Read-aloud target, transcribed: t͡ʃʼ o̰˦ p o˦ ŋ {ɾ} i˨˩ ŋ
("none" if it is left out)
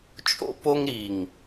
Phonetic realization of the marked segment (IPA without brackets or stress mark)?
ɾ